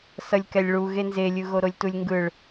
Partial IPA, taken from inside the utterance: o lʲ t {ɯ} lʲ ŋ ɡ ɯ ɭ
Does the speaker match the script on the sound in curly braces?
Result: no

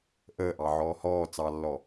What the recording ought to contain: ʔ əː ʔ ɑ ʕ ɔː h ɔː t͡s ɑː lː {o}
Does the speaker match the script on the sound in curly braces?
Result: no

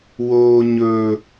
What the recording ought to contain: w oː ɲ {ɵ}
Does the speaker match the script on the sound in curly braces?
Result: yes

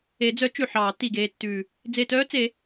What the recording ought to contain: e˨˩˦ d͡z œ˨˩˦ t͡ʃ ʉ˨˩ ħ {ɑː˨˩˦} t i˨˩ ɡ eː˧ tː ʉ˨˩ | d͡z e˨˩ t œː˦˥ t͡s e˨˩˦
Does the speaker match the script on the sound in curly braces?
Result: yes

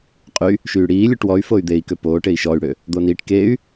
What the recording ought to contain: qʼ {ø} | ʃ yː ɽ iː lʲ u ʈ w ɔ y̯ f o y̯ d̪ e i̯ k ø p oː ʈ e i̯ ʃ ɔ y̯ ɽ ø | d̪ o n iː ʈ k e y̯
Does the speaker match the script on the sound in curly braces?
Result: no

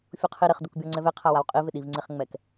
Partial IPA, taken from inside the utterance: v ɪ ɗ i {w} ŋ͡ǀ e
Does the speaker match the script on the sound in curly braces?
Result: no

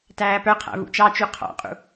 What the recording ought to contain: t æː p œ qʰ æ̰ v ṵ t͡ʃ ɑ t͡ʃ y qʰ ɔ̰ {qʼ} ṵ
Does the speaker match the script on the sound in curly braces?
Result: yes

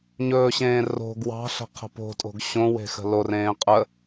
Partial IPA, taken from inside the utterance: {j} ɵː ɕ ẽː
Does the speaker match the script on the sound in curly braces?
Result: no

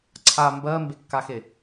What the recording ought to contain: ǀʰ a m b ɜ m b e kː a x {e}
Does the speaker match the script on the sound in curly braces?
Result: yes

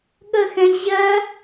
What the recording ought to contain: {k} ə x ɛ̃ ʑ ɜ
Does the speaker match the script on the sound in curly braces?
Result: no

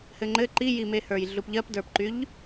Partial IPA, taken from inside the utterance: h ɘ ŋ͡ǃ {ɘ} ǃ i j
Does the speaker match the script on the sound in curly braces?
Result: yes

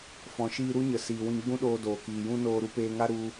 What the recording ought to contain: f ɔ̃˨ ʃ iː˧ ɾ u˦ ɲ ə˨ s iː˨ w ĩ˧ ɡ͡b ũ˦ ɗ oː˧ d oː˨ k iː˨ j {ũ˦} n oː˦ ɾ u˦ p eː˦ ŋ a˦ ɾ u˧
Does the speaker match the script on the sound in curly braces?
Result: yes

